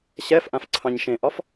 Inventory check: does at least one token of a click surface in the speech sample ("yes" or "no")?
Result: yes